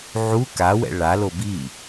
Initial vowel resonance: oral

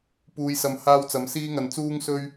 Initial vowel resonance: oral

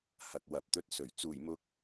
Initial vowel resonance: oral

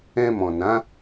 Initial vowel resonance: nasal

